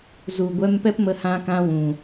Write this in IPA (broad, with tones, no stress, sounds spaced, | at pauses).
z u˨ ɡʷ ɛ˧ m p ɛ˦ p m ə˧ h ã˦ k ã˦ w ũ˨